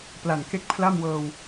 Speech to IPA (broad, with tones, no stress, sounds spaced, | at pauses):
p l a˨˩ n k e˥˩ k̚ pʰ l a˥˩ m w ɤː˧ w